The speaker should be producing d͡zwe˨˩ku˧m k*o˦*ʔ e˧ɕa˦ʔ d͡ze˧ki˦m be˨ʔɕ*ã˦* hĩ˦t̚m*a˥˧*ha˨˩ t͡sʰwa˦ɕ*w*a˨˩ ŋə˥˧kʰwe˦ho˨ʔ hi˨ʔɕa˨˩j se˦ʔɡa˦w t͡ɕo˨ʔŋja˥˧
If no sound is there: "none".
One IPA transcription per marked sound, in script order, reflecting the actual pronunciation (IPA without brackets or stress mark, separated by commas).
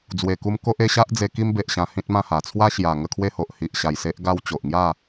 o˦, ã˧, ã˥˧, j